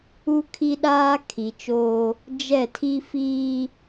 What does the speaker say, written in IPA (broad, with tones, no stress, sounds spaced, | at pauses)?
u˦ kʰ i˦ ɗ aː˦ kʰ i˨ t͡ʃ oː˦ | d͡ʒ ɛ˦˨ tʰ i˦ f iː˦